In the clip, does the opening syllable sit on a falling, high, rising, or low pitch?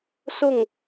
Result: falling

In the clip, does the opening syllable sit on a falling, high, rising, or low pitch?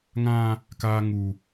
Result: high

